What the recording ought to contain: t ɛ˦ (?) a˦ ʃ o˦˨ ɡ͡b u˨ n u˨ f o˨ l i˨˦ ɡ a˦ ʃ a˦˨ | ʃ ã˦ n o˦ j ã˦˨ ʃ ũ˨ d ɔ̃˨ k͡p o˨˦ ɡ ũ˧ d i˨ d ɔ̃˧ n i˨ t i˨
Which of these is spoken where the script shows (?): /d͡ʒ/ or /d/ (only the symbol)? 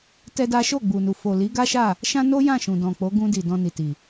d